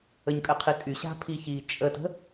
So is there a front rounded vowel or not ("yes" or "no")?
yes